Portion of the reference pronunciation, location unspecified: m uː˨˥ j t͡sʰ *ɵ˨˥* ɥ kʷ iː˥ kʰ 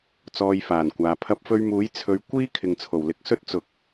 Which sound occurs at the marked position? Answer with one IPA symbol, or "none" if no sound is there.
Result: ɵ˨˧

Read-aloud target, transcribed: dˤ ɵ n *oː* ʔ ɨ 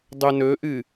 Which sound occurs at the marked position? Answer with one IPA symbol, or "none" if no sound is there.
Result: ɵː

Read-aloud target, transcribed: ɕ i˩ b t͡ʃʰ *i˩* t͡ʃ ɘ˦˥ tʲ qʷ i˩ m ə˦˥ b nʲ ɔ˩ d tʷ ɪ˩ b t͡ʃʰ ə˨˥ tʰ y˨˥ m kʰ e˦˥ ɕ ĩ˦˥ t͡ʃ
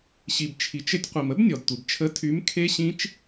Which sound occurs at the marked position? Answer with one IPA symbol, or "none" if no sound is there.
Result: i˩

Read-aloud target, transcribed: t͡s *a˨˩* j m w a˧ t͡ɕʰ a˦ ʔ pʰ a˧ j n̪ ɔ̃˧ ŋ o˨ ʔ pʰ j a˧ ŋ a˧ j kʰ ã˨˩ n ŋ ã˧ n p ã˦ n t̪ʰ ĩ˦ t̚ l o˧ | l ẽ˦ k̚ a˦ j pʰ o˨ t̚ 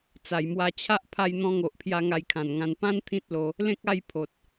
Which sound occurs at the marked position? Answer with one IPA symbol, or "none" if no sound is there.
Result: a˨˩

